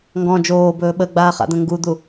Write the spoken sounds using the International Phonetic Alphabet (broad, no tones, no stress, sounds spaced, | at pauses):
ŋ ɡ ɔ̃ d͡ʒ oː b ɵː ɓ ə ɡ͡b aː χ a̰ d̪ ə̃ ŋ ɡ u d̪ u